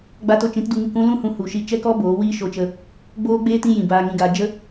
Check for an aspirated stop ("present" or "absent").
absent